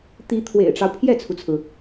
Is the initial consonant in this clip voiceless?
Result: yes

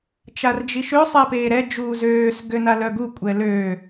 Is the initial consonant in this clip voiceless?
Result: yes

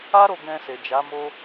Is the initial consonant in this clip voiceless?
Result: no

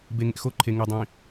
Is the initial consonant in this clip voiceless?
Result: no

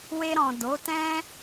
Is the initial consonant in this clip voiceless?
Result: no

